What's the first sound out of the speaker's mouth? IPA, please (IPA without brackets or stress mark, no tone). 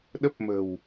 ɗ